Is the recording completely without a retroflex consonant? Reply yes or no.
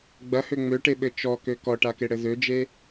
no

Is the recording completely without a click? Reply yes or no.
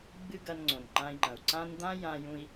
no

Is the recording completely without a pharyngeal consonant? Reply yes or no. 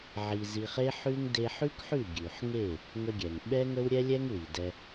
no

